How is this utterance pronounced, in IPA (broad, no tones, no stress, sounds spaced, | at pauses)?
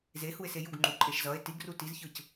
z e h u e̯ s e j u ɡ ŋ͡ǃ u ǃʼ e ʃ z ʌ e̯ t i ɡ r u t i z ç ɯ c